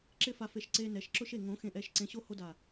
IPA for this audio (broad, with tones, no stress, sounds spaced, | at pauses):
ǁ ɪ˦ f a˧ f e˨ ʃ ǀ e˧ n ɛ˨ ʃ ǁ ʊ˦ ʃ e˨ ŋ õ˨˦ x ẽ˨ ʔ ɛ˦˨ ʃ ǀ ẽ˧ ɕ o˦ h o˦ d a˨